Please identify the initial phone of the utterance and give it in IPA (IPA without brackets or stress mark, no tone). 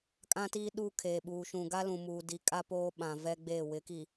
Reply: kʼ